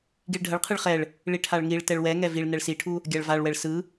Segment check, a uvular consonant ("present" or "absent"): present